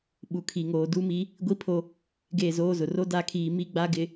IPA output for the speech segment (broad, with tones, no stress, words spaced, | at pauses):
ɓu˨kʰi˨ ŋoː˨du˦mi˦ | ɡʷi˦pʰo˦ | ɡe˦˨zoː˦zʊ˨ ro˦da˦˨kʰiː˨ mi˦ɡ͡ba˦ɡɪ˨